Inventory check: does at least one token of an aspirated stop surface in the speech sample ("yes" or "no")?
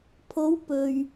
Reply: yes